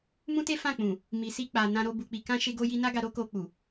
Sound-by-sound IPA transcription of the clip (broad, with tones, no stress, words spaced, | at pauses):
mũ˦te˦ fã˦˨k͡pũ˨ | mi˨si˧k͡pa˨ nã˧ɾo˧ bu˨k͡pi˨kã˧ ʃe˧ɡo˧ji˧ na˦ɡa˧ɾo˦ ko˧k͡pu˨